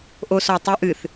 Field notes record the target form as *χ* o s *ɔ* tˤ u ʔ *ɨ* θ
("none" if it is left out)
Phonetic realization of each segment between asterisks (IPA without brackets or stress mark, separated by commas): ʔ, ɔ, ɨ